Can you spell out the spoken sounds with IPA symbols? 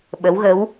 ɓ ə˧˥ w ɣ ə˧˥ w

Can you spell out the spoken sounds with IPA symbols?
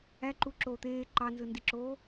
æ ǃ u ǁ oː t̪ eː ǃ ɑ n z ɯ n d i ǁ oː

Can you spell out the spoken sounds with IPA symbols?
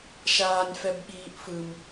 ʃ aː nʲ f ɛ b ɠ iː ʔ f ɯ m

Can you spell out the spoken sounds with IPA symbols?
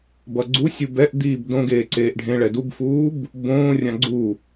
b ʌ ɡ͡ǀ u sʲ u b ɛ ʔ d̪ iː b d õ ɡ eː ǀ eː ʔ ɖʱ ẽ ɭ ɛ d u b f uː b | b õː rʲ ã ɡ͡ǀ u

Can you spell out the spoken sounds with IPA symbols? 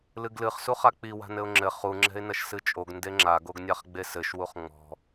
l ɨ ɡ l ɨ χ s u χ a k͡p i w a̤ n ɘ ʊ̯ ŋ͡ǁ ɘ χ u ŋ͡ǁ ɛ̤ ɪ̯ n ɐ ʃ s ɨ t͡ʃʼ o ɡ n d e ŋ͡ǁ a ɡ o ɡ nʲ a χ ɡ͡b e s ɘ ʃ w u χ ŋ͡m ɔ̤

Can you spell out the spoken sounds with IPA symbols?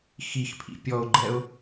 x i x pʰ ḭ pʲ ɔ ʊ̯ ɡ͡ǃ ɛ ʊ̯

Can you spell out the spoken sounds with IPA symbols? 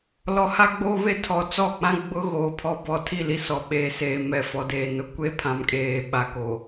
l ɔ˨ h a˦ ɡ͡b o˦ β e˦ tʰ ɔ˨ t͡s ɔ˦˨ k͡p ã˦ ɡ͡b ʊ˦ ɣ oː˨ pʰ ɔ˦ b ɔ˨ tʰ i˦˨ l i˦ s ɔ˨ ɓ eː˨ s eː˨ m ɛ˨ f ɔ˨ d eː˨ n ʊ˦ kʷ e˦ pʰ ã˨ m kʼ eː˨ ɓ a˨ k o˨

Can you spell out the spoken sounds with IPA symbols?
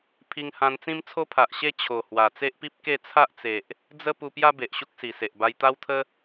pʰ i˧ ŋ h ã˧ n t͡s ĩ˦ m t͡sʰ o˦ pʰ a˨ ʔ ɕ e˥˧ t͡ɕʰ o˨˩ h w a˨˩ t͡s e˦ ʔ p i˦ p̚ k e˥˧ t͡sʰ a˦ ʔ t͡s e˨ ʔ | d͡z ə˦ p u˧ p j a˦ b e˨ ʔ ɕ u˦ k̚ s i˨˩ s e˨ ʔ b a˧ j t̪ a˦ w t̪ʰ ə˦

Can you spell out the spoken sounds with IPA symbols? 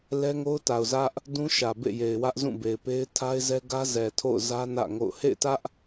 l ɛ˦ ŋ o˦ ʊ̯ t a˨ ʊ̯ z ä˦ ʔ | d ũ˦ ʃ ä˨ b ḛ˦˨ j e˨ ɪ̯ w ä˦ ʔ z ũ˦˨ b e˨ ɪ̯ p e˦ ɪ̯ tʰ a˦ ɪ̯ z ɛ˦ ɡ ä˦ z ɛ˨ tʰ o̰˦˨ ʊ̯ z ä˦ n ä̰˦˨ ŋ o̰˦˨ ʊ̯ h ḛ˦˨ ɪ̯ t ä˦ ʔ

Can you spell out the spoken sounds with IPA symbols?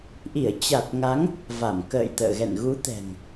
ʔ i˧˩ ə̯ t͡ɕ a˨˩ t̚ ŋ a˨˦ ŋ | v a˧˩ m k ə̰ː˧˨ j t̪ ə̰ː˧˨ ɣ ɛ̰˧˨ n ɣ u˨˦ t̪ ɛ̤˨˩ ŋ

